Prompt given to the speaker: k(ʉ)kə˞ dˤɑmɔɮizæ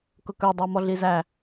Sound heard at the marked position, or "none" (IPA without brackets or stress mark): ʊ